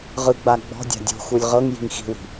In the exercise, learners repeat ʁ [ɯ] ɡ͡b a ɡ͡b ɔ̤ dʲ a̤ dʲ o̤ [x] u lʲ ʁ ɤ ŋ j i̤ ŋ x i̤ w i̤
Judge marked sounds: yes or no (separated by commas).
yes, yes